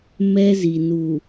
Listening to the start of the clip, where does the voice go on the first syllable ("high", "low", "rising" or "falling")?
high